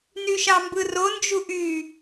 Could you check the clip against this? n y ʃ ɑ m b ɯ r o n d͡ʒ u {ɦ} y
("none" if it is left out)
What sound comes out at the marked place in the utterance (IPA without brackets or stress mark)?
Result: ʔ